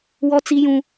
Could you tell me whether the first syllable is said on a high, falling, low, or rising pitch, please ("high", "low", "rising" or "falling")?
high